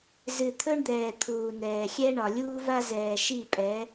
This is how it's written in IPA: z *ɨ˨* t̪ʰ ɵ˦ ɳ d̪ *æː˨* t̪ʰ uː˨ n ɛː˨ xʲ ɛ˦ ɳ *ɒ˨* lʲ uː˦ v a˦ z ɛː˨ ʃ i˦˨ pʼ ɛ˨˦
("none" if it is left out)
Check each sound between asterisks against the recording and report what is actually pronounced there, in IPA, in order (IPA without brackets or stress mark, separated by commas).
ɨ˨, ɛː˨, ɒ˨